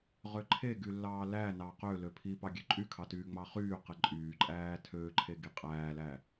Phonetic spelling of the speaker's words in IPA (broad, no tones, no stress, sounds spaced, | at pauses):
ʁ ø ǃʰ e ɡ y lː ɑː l æ n ɑ q ø l ø pʰ i p ɑ ɡʲ ø ǃʼ y kʰ ɑ t yː ŋ͡m ɑ χ yː q e ǃʼ yː ǃʼ æː tʰ ø ǃʰ e ɡ i qʼ æː l æ